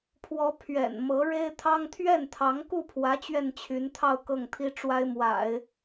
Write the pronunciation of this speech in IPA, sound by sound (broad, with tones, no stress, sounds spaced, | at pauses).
pʰ w ɔ˧˥ pʰ ɥ ɛ̰˨˩ n m ɤ˧˥ ɻ e˥ ɪ̯ t̪ʰ ɑ˥ ŋ t̪ʰ ɥ ɛ˥˩ n t̪ʰ ɑ˧˥ ŋ k u˥˩ pʰ w ä˧˥ t͡ɕ ɥ ɛ˥˩ n t͡ɕʰ y˧˥ n t̪ʰ ɑ˥˧ ʊ̯ k ɤ˥˩ ŋ t̪ʰ i˥ ʈ͡ʂ w a˥ ɪ̯ m w a̰˨˩˦ ɪ̯